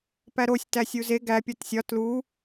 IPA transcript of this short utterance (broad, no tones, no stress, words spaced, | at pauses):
pæɾosʲ tæsʲuze ɡæ pʲɒtsʲɒ tlu